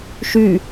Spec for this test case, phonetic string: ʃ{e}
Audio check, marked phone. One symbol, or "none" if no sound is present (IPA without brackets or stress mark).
y